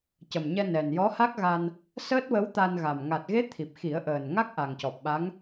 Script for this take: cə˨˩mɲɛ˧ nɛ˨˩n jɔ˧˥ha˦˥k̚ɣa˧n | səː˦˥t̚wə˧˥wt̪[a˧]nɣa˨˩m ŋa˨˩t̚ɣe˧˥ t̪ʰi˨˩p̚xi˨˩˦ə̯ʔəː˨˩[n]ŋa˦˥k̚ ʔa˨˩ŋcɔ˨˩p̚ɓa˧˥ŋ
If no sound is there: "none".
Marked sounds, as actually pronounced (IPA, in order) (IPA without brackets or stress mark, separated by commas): a˧, n